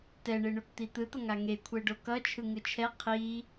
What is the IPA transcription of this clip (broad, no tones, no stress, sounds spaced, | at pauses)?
t ɛ ɳ e ɳ o k t̪ i t̪ ɯ t̪ ʌ ŋ a ŋ e kʷʰ ɛ ɖ o k ʌ t͡ʃʰ ɯ ŋ ɯ t͡ʃʰ ɛ qʰ i